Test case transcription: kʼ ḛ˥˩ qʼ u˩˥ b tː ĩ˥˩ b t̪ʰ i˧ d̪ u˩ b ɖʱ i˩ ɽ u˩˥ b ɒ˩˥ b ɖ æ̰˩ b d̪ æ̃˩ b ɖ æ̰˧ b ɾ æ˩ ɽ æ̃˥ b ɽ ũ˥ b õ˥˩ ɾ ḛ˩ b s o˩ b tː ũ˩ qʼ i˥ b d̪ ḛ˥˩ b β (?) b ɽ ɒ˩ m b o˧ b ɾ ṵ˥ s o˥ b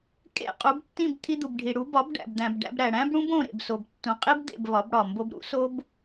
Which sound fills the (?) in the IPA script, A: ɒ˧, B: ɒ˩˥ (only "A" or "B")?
B